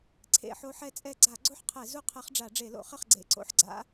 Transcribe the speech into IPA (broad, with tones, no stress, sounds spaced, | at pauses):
ǀʰ ḛ˧˩˧ ħ o˧˥ ħ ɛ˥˩ t͡sʼ ɛ˥˩ ɡ͡ǀ a˧˩˧ ɡ͡ǀ o˥˩ ħ qʰ ɛ˧˩˧ z u˥˩ qʰ ɛ˧˥ χ ɖ͡ʐ a˧˩˧ ɖ͡ʐ e˧˩˧ l o̰˧˩˧ χ ɘ˥˩ χ ɡ͡ǀ ḛ˧˩ ǀ o̰˧˥ ħ ɡ͡ǀ a̰˧˥